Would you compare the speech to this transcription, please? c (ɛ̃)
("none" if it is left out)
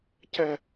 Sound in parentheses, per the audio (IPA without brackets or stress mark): ɛ